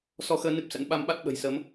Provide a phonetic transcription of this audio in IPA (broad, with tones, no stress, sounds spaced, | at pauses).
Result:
s ɔ˧ x əː˧ n ɨ˦˥ p̚ s ə̰˧˥ n ɓ a˧ m ɓ a˦˥ t̚ ɓ ə̤˨˩ j s əː˨˦ m